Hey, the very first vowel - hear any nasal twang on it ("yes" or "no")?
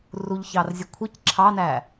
no